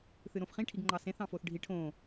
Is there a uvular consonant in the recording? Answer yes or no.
yes